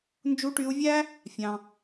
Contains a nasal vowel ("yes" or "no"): yes